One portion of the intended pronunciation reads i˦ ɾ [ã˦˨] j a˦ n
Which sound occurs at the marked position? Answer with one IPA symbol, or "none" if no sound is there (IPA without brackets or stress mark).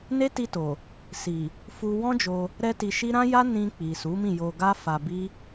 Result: ã˦